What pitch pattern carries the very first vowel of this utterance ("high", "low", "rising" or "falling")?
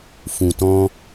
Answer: low